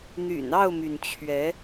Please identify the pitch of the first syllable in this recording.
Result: low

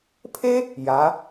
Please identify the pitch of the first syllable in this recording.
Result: high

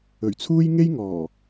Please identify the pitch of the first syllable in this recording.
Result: low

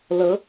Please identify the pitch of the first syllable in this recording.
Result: rising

